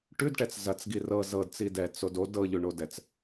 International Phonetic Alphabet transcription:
ʈʉdʈɛt͡s zɐt͡sɡi rɤ zɤdt͡si dɛt͡sod od ɤʎʉɳodɛt͡s

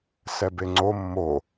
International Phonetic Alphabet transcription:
sɛbeŋ͡ǀo mːo

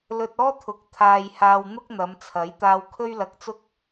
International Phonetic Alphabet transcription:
lɵ˧t̚ɔː˥t̪ʰʊ˨˥k̚ t̪ʰaː˨j haː˧wn̪ʊ˥k̚n̪ɐ˨˧mt͡sʰɐ˨˥j t̪aː˧wkʰɵ˥ɥlɐ˧k̚t͡sʊ˥k̚

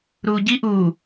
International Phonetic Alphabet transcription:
ɾuːɟi ʔuː

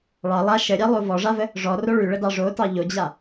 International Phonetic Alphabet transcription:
ɭɑ lˠa ʃəɾʲɑlˠo vɔʐavə | ʐɔro ɭʉɭədɑ ʐotɑ ʎod͡ʑa

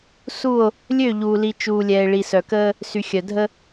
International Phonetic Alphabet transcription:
su˦˨o̯ | lʲø˦˨ʎuː˨li˨ t͡ʃuː˨ lʲɛː˨e̯ɭi˨sœ˨kəː˦ | sy˨xʲœ˨ dʱə˦

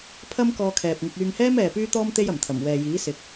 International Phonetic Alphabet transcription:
pʰɐ˥mkɔː˧kʰɛː˨p̚ŋɪ˧k̚ yː˧ŋhɛː˥mɛː˨ pyː˥t̪ɔː˥m t̪e˥j ɐ˨˩mt̪ʰɐ˨˩m wɛː˨jiː˨˥ sɪ˨˥k̚

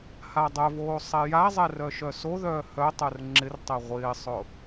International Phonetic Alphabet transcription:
hadˤœvoː sˤɛjazˤɛ rœʃœsoðœː hœtˤœr ŋ͡ǁɪrtˤɛ ʁʷɪːsˤʊ

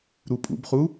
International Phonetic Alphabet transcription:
ɾupʼṵbχu

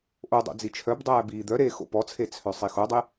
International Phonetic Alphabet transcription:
ʔodˤo̰ d͡zit͡ʃʰœbdˤæː biːd̪œɾeː xo̰pɔt͡sʰe t͡sʰœsˤixodˤe

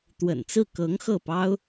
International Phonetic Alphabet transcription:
t̪wə̰˨˩nt͡sɹ̩˥˩ kɤ˧˥ŋ xɤ˥˩pɑ˥ʊ̯

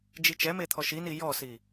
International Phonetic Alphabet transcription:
d͡ʒit͡ʃɛme t̪ʰɔʃini jɔsi

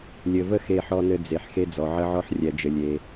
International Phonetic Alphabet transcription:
lʲɘ˧və˥ xe˧ħɔ˧nɘ˧ d͡ze˩ħ xe˧d͡zɔ˩ ʕə˧ʕɔ˧ħ rʲɛ˩d͡ʒɘ˩lʲe˩

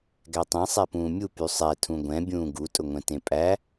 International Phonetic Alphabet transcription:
ɡætˤẽ sˤɛpũːmʲu pysˤɛ tʰũɡʷɛ̃ bʲũːɡu tʼʊŋʷɛ̃tẽpʼæ

